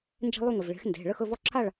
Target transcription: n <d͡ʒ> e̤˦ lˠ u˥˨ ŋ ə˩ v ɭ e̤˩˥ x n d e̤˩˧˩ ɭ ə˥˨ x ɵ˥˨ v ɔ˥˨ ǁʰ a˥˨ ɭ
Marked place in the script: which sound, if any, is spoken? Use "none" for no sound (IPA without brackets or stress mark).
d͡ʒ